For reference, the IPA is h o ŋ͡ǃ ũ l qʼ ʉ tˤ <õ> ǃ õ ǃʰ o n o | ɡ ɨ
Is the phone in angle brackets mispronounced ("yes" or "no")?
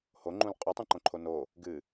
yes